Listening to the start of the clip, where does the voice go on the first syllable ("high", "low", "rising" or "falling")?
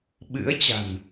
rising